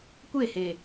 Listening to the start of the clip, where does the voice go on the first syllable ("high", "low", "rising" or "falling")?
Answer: falling